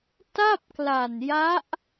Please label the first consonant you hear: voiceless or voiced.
voiceless